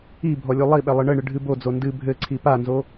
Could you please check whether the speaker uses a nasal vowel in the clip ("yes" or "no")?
no